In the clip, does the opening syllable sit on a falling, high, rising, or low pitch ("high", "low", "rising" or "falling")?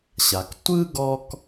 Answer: low